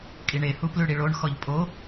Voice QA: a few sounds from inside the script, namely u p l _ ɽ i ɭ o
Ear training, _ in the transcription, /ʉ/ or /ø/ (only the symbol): ʉ